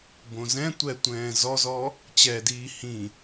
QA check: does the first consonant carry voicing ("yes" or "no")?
yes